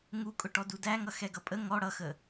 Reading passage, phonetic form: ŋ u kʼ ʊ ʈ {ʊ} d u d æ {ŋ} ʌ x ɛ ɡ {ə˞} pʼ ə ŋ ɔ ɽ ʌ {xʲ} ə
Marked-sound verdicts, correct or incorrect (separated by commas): incorrect, correct, incorrect, incorrect